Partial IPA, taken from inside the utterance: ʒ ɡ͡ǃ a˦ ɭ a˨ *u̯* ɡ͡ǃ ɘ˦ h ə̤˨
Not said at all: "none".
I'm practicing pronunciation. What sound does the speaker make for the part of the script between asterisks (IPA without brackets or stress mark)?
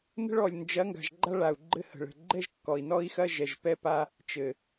u̯